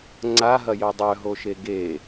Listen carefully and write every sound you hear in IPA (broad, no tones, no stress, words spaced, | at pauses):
ŋ͡ǀaɦɐjœ dˤœɦoʃe ɡe